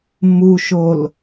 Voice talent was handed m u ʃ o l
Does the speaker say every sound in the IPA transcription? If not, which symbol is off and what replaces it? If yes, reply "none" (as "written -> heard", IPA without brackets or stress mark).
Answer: none